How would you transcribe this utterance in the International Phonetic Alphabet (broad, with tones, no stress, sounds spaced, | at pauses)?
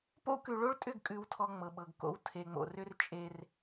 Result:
p o̰˦ k ʉ˨ ɭ o˦ ɭ tʼ ʏ˦˨ ɡ kʼ ʉ˨ w tʰ ɔ˨ ŋ͡m ɤ˨ ɓ ɤ˨ ɡ k o̰˦ w tʰ e˨ ŋ͡m o̰˨ r ʏ˦ r t͡ʃʼ e˦ r